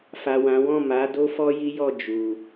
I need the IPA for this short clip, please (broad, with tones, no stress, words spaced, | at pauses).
fa˨ wã˨˦ wɔ̃˦˨ ma˨˦ do˦fɔ˦ji˦jɔ˦˨ d͡ʒu˨